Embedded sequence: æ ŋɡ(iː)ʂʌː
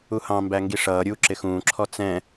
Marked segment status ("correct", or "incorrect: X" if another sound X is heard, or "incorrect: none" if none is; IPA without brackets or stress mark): incorrect: i